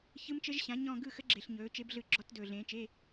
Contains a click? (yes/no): yes